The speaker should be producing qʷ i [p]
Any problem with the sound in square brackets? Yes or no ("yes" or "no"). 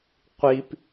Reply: no